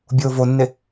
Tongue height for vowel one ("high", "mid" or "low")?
high